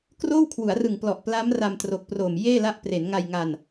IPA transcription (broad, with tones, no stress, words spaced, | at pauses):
kroː˥˩wkʰwu˩˦a̯rɯ˨˩ŋ plɔ˨˩ʔpla˦˥m ra˧mtro˨˩k̚proː˨˩m jeː˥˩la˦˥ʔ pre˩˦nŋa˧j ŋa˧n